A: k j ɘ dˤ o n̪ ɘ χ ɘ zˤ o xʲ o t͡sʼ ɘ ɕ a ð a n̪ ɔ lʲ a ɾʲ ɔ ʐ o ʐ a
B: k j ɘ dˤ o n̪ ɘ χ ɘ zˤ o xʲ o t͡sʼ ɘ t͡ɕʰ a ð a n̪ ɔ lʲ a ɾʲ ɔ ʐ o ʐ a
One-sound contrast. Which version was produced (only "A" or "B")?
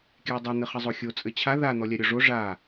B